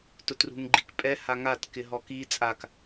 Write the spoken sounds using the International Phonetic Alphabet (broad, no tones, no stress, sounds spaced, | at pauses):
t ʊ t r ṳ ŋ ɡ͡ǃ i k pʼ ɛ h a ŋ a t k ɪ ɦ ɔ k i t͡sʼ a k